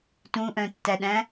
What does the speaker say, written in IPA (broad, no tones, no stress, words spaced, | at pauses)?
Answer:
tũʔœ̃tːæɗæ̃